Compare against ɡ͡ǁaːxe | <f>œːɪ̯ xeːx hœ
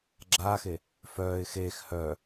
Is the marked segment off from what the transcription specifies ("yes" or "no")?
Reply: no